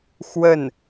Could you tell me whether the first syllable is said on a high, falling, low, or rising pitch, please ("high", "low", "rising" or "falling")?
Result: falling